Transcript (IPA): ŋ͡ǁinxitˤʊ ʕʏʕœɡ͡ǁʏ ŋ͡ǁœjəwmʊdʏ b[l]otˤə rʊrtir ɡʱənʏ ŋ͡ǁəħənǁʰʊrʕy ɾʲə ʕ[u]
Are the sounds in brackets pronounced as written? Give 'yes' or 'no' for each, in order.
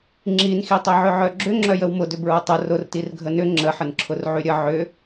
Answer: no, no

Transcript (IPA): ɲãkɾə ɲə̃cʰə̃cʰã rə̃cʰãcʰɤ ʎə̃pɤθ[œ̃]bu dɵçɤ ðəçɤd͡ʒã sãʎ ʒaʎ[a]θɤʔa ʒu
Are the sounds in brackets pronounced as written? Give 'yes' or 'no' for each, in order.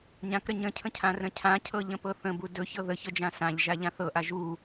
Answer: no, no

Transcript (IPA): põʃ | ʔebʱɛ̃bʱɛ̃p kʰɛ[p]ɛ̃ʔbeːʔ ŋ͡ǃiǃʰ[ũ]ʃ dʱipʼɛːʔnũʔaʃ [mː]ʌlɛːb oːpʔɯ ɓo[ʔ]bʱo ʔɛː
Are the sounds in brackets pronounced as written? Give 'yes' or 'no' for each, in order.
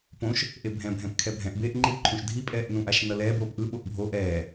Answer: no, yes, no, yes

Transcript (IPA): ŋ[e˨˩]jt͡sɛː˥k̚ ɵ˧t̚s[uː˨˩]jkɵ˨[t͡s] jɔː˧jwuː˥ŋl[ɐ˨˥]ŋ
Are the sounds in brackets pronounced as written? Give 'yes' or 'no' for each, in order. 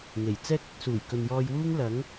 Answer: yes, yes, no, yes

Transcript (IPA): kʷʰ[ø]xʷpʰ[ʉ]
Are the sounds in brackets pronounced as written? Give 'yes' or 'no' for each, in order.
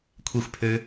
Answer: no, no

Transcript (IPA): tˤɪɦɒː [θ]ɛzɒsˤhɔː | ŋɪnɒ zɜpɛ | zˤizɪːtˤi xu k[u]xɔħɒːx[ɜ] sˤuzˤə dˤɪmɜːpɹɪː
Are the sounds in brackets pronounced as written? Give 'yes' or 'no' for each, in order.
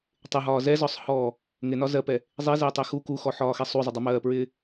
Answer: no, yes, no

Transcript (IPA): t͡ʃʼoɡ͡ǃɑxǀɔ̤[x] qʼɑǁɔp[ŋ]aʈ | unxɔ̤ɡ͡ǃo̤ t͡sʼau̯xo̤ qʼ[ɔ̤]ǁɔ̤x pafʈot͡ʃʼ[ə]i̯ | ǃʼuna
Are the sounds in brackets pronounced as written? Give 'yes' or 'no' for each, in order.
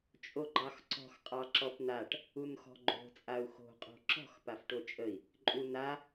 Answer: yes, no, no, yes

